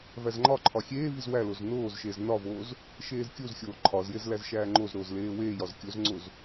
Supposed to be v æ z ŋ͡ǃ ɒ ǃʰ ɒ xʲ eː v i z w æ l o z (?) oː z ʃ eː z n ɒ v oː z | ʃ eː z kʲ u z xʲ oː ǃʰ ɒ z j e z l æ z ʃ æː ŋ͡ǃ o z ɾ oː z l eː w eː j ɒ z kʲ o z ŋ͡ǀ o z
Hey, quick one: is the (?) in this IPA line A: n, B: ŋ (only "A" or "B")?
A